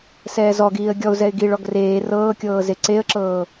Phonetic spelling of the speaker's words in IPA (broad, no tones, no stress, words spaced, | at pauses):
sɛːzɔɡiːə̯ ɡʲɔʊ̯zɛɪ̯ ɡiɭ ɔɡreː rɤːkʲɤːze ǀeə̯ǁɤː